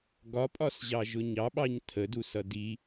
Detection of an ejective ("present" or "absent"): present